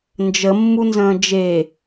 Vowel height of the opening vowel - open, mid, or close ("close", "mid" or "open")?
mid